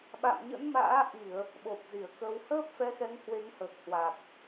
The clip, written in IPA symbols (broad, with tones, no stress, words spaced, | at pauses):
ɓa̰˧˨mɲə̰˧˥nma̰ː˧˥ʔi˧˩˨ə̯ | ɓo˨˩p̚zi˧˩ə̯kə˧w həː˦˥p̚fɛ˧xɛ˨˦ŋ hwe˨˦ŋhəː˨˩k̚hwa˨˩k̚